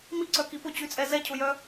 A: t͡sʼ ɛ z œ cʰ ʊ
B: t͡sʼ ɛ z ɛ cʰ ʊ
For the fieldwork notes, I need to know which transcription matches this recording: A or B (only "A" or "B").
B